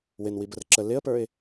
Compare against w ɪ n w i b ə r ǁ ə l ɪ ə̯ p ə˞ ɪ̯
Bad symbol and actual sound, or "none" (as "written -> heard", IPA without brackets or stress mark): none